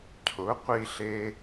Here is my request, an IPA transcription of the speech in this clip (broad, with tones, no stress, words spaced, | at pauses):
cʰʊ˩˥qʷi˧ɬe˧